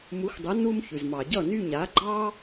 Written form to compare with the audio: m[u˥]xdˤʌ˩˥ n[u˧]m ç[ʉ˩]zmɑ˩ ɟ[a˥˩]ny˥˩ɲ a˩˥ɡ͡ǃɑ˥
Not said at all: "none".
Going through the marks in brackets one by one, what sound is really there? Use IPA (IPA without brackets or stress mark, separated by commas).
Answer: u˩˥, u˧, ʉ˩, ʌ˥˩